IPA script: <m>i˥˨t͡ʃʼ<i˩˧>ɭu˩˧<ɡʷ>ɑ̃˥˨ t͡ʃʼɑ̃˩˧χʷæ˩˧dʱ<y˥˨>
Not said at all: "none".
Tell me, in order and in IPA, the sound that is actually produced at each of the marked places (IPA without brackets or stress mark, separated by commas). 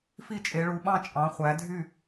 f, e˩˧, ɓ, y˥˨